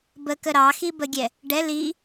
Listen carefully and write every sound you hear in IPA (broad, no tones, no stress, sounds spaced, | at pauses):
b ə k ə ɾ ɑ x i b ə ɡʲ ɛ | ɖ ɛ l i